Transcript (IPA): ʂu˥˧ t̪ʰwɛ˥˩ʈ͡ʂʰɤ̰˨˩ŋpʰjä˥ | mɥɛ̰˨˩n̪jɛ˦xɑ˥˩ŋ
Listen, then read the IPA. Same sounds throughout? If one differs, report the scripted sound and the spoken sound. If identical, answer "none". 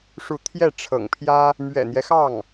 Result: w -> j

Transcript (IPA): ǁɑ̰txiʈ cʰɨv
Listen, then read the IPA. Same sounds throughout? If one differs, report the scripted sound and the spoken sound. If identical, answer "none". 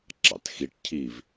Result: ɨ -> i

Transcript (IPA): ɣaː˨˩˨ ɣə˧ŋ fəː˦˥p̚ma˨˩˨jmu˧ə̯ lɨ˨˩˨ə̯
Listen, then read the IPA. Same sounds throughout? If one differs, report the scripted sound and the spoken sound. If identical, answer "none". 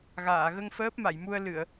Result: none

